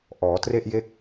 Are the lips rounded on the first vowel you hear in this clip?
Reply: yes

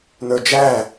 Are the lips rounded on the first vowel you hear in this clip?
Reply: no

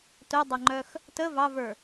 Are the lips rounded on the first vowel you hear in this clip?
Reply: yes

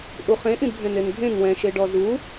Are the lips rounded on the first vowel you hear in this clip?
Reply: yes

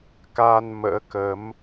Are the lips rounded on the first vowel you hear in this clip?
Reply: no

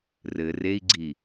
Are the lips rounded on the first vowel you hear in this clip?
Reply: no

